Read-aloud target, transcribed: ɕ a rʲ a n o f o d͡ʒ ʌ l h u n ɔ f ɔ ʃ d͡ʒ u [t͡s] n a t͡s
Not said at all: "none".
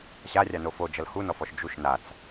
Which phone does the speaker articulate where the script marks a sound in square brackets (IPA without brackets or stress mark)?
ʃ